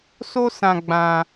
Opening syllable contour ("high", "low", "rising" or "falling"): high